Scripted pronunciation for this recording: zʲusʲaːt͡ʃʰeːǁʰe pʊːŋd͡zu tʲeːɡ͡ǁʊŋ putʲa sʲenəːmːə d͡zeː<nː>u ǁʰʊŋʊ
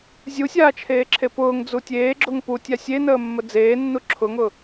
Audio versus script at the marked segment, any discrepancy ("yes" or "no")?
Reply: no